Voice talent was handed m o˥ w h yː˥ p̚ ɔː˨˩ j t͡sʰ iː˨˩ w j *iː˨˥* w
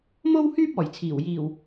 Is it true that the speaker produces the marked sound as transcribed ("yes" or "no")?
no